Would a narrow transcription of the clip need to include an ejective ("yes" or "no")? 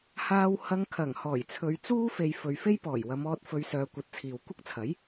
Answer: no